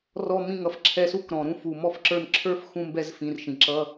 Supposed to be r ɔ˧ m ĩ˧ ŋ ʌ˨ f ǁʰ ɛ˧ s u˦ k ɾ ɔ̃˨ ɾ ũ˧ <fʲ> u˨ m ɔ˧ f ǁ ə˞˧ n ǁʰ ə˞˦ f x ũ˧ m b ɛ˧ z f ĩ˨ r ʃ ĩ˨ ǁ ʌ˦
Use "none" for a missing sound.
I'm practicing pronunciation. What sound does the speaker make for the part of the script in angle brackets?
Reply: f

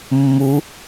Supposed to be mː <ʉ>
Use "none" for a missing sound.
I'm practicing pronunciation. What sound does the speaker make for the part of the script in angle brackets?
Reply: u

